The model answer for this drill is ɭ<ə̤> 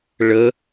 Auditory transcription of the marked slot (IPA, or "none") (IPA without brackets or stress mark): ə